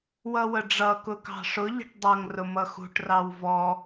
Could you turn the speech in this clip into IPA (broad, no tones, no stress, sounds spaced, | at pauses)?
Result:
w ʌ w ə ɖ͡ʐ ʌ k ʊ k ɑ̤ ʂ ʊ ʎ ə̤ ʈ dˤ ʌ ŋ r ʊ m ʌ x ṳ ʈ r ɑ w v ɔ